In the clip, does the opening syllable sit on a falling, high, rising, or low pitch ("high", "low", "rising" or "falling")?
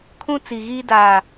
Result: high